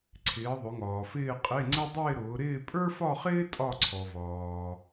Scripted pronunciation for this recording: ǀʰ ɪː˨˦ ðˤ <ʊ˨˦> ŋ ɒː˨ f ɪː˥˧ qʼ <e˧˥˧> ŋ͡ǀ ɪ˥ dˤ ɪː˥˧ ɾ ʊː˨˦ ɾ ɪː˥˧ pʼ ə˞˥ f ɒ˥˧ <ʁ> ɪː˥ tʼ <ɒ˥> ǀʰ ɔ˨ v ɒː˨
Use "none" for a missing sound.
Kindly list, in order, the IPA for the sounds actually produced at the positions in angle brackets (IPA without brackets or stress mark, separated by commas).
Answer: ʊ˨˦, e˧˥˧, χ, ɒ˥˧